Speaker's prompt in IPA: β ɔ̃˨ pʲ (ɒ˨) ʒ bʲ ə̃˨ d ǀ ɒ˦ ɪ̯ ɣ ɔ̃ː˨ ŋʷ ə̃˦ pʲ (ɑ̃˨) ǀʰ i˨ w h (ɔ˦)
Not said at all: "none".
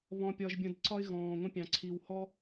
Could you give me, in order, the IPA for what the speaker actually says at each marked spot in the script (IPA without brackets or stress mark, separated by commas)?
ɒ˨, ɑ̃˨, ɔ˦